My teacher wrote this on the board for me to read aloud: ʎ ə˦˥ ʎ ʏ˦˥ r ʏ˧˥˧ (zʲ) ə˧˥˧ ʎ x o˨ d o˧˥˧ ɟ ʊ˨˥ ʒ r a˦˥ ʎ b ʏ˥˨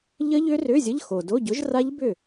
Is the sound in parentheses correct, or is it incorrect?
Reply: correct